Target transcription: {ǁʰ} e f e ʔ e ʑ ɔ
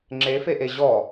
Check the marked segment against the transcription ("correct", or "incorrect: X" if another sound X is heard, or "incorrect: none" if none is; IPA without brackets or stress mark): incorrect: ŋ͡ǁ